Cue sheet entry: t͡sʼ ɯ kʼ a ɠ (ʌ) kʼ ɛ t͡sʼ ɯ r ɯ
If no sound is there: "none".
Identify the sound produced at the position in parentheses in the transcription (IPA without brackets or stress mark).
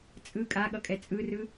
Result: ʌ